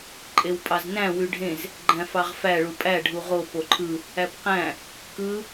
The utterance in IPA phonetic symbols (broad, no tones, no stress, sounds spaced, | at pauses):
ǃʼ e w pʼ ɑ z n æ̃ w y ɖʱ ẽ z | ɡ͡ǃ æ̃ f ɑ ʁ f æ ɭ u pʼ æ ɖʱ u ʁ o p o ǃʰ ɯ | æ p q æ̃ | k ɯ